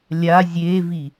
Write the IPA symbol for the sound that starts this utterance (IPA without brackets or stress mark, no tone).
lʲ